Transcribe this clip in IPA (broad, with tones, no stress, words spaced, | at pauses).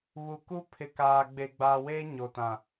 βu˨ku˦ pʰɪ˨kaː˨ ɡ͡be˨ɡ͡baː˨weː˦ ɲo˨tã˨